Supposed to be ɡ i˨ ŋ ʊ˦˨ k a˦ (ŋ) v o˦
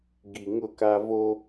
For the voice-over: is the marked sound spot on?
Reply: no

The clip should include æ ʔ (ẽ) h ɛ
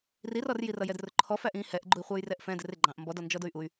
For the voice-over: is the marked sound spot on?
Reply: no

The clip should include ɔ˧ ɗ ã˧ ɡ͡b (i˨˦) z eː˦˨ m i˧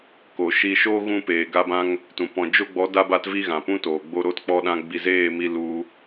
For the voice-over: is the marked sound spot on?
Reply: no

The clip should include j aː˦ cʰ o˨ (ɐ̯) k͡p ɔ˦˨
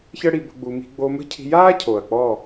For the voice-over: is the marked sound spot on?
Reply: yes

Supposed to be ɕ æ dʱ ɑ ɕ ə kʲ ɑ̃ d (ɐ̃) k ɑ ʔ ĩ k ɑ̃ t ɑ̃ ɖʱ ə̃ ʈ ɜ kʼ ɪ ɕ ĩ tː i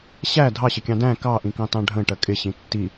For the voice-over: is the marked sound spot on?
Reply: no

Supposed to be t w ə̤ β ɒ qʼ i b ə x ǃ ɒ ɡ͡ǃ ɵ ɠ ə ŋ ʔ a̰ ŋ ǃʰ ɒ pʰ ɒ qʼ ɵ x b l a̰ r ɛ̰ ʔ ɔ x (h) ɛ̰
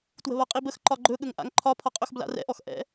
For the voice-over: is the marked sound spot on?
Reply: no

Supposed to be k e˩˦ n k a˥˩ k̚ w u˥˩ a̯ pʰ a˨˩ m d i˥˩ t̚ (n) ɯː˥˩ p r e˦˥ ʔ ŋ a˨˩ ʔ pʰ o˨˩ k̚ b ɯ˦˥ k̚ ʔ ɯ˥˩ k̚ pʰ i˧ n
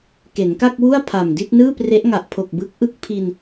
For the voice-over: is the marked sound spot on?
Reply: yes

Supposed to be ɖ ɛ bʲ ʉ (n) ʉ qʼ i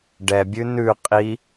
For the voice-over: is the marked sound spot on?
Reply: yes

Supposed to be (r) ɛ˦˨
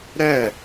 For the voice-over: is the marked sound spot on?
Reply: no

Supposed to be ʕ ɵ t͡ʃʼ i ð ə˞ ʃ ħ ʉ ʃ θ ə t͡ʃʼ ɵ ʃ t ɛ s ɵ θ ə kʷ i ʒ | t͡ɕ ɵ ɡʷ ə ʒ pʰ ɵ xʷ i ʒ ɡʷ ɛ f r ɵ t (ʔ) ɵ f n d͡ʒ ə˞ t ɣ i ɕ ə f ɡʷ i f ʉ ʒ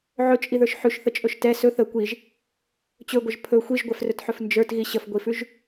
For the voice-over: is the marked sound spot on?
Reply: no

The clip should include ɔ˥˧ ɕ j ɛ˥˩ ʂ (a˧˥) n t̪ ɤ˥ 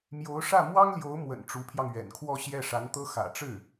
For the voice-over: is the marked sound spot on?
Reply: yes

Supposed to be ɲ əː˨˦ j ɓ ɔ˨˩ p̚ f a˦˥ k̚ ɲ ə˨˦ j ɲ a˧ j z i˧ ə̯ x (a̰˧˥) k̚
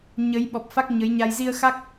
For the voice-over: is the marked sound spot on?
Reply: no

